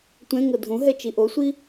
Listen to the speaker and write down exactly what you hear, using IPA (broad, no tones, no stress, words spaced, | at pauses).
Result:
tʷɛ̃ ŋɤdʱũɦɛ t͡ʃiʔosʷi